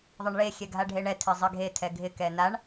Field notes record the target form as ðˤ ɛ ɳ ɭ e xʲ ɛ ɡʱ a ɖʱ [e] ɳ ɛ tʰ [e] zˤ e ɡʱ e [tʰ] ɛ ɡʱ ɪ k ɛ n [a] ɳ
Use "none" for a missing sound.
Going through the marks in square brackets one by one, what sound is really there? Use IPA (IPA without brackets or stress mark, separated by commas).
e, e, tʰ, a